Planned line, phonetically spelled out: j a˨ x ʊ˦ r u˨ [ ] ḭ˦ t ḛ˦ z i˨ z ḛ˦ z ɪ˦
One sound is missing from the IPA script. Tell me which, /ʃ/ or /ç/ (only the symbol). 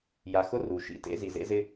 ʃ